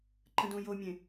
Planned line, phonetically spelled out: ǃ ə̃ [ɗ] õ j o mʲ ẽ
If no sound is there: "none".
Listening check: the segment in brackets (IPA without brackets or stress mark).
d